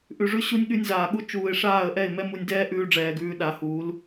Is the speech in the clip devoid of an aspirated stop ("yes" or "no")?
yes